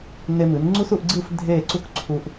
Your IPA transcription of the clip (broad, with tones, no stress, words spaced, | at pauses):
ne˧mɨ˩˧n ŋ͡ǀu˥su˥˧ʔɡ͡ǀɨ˥˧f dʱe˥˧ǀu˥k ǀʰu˧ʔ